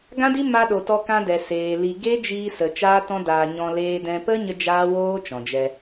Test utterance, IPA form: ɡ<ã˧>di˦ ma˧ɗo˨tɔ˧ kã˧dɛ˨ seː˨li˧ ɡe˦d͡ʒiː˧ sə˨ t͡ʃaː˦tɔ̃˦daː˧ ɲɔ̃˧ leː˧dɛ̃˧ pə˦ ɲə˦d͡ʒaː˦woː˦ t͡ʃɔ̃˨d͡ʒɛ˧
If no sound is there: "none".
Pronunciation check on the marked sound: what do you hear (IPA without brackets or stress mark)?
ã˦